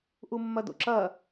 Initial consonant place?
glottal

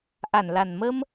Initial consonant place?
glottal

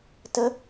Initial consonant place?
alveolar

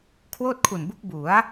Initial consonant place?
velar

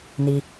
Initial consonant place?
alveolar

